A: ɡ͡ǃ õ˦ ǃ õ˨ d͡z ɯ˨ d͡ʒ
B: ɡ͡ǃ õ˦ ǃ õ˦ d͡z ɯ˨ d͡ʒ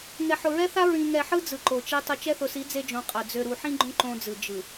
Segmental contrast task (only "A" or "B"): B